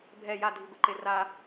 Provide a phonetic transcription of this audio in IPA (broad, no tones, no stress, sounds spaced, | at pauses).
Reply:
bʱ ɛ j a dʱ i ɡʷ ɯ ǃ e r a